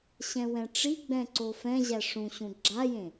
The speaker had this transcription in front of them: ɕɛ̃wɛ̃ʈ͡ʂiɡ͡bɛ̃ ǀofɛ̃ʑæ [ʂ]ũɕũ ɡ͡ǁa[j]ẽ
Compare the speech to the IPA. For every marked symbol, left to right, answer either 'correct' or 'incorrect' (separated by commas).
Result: correct, correct